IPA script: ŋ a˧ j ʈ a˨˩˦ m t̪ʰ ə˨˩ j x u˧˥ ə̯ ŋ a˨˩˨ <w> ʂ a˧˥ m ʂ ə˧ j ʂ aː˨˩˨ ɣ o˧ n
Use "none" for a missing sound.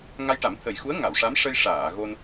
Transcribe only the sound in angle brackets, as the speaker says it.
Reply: w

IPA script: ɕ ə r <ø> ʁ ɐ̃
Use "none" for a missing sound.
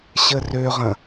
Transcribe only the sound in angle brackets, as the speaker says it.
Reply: ø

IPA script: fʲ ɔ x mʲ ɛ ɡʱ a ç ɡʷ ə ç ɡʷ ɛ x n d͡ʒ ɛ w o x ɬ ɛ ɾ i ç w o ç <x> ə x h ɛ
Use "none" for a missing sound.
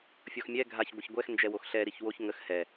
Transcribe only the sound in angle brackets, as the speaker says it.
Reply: ŋ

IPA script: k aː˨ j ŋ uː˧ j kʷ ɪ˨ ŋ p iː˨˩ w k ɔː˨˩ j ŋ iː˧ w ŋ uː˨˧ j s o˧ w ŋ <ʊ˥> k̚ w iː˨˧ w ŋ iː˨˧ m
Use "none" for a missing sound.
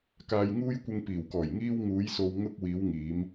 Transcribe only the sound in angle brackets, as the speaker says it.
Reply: ʊ˥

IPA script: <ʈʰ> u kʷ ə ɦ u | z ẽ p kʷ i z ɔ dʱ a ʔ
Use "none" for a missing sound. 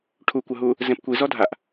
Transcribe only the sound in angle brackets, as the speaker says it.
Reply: ʈʰ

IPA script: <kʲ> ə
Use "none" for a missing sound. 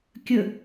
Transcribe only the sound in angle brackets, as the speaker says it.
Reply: kʲ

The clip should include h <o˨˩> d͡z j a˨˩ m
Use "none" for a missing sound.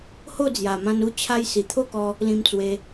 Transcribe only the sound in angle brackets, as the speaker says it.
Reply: o˥˧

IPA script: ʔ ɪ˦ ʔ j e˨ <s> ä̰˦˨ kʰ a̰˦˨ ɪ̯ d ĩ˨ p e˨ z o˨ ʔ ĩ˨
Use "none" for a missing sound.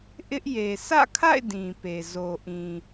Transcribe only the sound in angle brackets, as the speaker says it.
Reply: s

